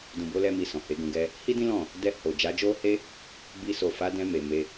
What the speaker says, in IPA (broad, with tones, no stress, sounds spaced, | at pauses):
d ũ˨ b o˨˦ l ɛ˧ m i˨ s ɔ̃˨ h e˨˦ ɡ ũ˧ ɡ ɛ˧ | h i˦ d ĩ˦ l ɔ̃˦˨ | d ɛ˧ h o˨ d͡ʒ a˨˦ d͡ʒ o˦ h e˦ | b i˧ s o˨ f a˨˦ d ɛ̃˧ m e˨ m e˧